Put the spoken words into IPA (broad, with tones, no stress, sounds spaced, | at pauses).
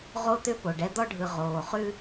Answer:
ʁ o˦ t̪ ʏ˦ p o˨ ɖ ɛ˦ d̪ ɔ˦ ɖʱ ɯ˨ ʁ oː˨ χ ʉ˥